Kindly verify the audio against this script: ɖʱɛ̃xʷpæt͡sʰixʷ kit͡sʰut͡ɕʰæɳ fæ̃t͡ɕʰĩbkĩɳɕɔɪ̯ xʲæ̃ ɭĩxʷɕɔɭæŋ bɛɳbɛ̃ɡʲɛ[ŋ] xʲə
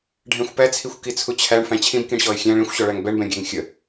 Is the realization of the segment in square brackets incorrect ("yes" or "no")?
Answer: no